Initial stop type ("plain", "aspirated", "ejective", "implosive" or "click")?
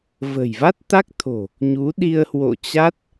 plain